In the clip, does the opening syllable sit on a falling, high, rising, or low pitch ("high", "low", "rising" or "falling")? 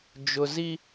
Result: low